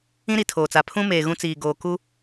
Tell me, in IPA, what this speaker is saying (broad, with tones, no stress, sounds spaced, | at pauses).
ĩ˦ ɾ i˨ tʰ oː˨ t͡s a˨ pʰ ũ˦ m eː˨ ɣ ũ˦ t͡s iː˨ ɡ oː˨ k u˦